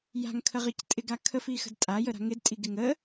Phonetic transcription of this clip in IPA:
j a̤ ŋ kʰ ə ʁ i c tʼ ɪ ɡ a kʰ ə f i x ə̤ d tʼ a j ə ɾ a̤ ŋ ɪ d tʼ i ɡ ɪ ŋ ə

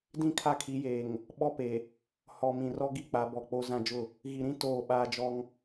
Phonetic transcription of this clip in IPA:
d ĩ˦˨ kʰ a˦ kʰ i˨˦ j eː˨ ŋ | ɓ ɔ˦ p e˨ | h ɔ˨ m ĩ˨ r ɔ˦ ɡ i˦ k͡p a˨˦ b ɔ˨ k͡p o˦ z ã˦ d͡ʒ ʊ˦˨ | ɣ i˨ ɾ ĩ˦ t oː˦˨ ɓ aː˦ d͡ʒ ɔ˦ ŋ

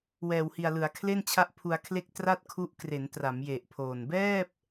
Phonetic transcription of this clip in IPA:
w ɛː˨˩ w h i˨˩ a̯ l ɯ˩˦ a̯ kʰ l e˥˩ n t͡ɕʰ a˦˥ ʔ pʰ u˧ a̯ kʰ l e˦˥ k̚ t r a˥˩ t̚ kʰ u˦˥ ʔ k r e˩˦ n t r a˩˦ m j e˨˩ ʔ pʰ oː˨˩ n b ɛː˥˩ p̚

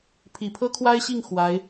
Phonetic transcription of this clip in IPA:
pʰ i˨˩ pʰ ɤ˥ kʰ w a˥ ɪ̯ ɕ i˥˩ ŋ x w a˧˥ ɪ̯

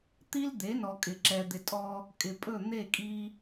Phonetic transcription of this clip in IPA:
t̪ i˦ l d̪ e˨˦ n ɔ˨ kʼ ɪ˨ ǁ ɛ˨ d̪ ɪ˨ tʼ ɔ˧ | kʼ ɪ˨ pʼ ɵ˦˨ n̪ e˦˨ kʼ i˧

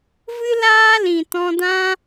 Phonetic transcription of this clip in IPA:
v ɨ˦ l aː˦ l ĩ˨ t ɔ̃˧ d ã˦

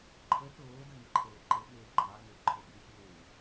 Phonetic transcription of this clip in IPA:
ǃʰ ə t oː d ɐ ŋ ə ǃʰ əː ǃ ə ɓ eː ɡ͡ǃ ɑ ŋ ə ǃʰ o ɓ i xʲ eː

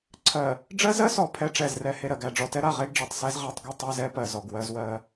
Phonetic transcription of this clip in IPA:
ǀʰ ɜ˨ | ɖ͡ʐ ɜ˦ z ɜ˦ s ɔ˨ pʰ ɛ˦ ʈ͡ʂ ɛ˦˨ z r ɛ˦ h e˨ ɾ ɜ˨ ɡ æ˨ ɖ͡ʐ ɔ˨ t ɛ˦ ɾ a˦˨ ʁ e˦ ɡ ɖ͡ʐ e˨ tˤ s ɛ˦ z ʁ æ˦ tˤ ɡ ɛ˦ tˤ ɜ˦ z ɛ˦ p ɜ˨ z ɔ˨ ɡ w ɜ˦ z w ɜ˦

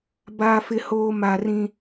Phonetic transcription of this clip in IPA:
b aː˦ f ɪ˦ h oː˦ m a˦ r ĩ˦

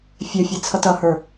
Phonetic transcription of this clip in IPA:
fʲ ɜ fʲ e t͡sʰ ʌ t ʌ h ə˞

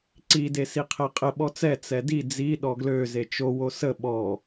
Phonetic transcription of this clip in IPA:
ǀ i d e s i qʰ ɛ qʼ ə ɓ ɔ t͡s ɛ t͡s ɛ d i d͡z i ɗ ɔ ɡ l ø z e t͡ʃ o w o s ə ɓ ɔ

